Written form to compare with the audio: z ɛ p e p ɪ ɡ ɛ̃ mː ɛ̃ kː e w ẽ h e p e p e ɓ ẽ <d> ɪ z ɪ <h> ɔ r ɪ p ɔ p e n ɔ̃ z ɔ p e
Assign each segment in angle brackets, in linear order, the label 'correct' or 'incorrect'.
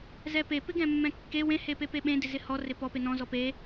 correct, correct

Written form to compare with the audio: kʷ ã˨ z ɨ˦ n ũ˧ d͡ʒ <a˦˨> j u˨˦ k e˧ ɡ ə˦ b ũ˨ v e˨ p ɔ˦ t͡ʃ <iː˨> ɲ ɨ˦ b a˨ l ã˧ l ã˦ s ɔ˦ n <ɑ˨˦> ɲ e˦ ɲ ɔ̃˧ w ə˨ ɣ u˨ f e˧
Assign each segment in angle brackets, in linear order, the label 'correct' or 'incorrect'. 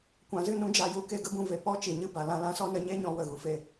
incorrect: a˨, incorrect: i˨, incorrect: ə˨˦

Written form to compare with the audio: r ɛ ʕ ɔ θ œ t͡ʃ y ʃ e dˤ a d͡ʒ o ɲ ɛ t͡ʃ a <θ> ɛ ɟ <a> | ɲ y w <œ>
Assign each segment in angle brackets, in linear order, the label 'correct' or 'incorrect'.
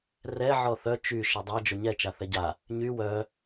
correct, correct, correct

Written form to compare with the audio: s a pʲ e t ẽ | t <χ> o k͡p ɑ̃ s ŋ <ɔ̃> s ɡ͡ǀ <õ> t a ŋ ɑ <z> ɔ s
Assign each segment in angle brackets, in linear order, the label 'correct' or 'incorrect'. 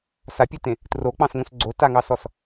incorrect: r, incorrect: õ, incorrect: o, incorrect: s

